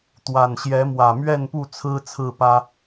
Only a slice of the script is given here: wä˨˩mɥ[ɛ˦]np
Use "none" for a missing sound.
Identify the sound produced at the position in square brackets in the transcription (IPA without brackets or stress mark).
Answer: ɛ˥˨